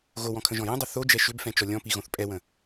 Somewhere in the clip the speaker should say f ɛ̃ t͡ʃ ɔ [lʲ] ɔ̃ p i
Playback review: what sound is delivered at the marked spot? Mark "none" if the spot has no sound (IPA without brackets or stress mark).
lʲ